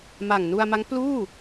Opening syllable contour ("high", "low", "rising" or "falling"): low